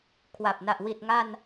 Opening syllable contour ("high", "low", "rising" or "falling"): low